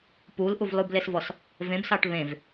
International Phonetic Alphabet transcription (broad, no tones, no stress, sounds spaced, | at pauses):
p u l ʔ u v lˠ u b l e s v ɔ s | v ẽ b s ɑ ʈ β ẽ v